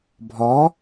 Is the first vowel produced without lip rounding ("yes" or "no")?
no